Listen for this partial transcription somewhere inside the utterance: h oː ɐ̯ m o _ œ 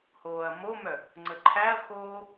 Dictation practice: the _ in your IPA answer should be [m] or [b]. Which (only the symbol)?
m